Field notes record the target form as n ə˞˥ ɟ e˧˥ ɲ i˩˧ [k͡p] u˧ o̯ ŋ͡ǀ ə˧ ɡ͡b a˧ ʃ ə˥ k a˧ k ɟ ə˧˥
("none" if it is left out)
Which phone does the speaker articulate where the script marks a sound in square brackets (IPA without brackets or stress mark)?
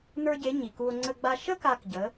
k